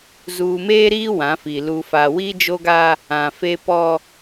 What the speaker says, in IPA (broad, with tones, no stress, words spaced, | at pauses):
zuː˨meː˦ɾiː˦ wã˨˦fi˨ lu˨fa˨wi˦ d͡ʒo˦ɡa˦ | ã˨fe˦ pɔ˦